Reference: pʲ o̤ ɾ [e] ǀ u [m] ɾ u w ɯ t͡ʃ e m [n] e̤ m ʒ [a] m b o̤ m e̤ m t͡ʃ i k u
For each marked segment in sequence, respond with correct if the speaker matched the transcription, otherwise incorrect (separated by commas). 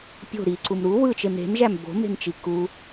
incorrect, correct, incorrect, incorrect